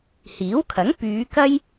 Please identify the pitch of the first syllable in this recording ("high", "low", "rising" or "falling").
rising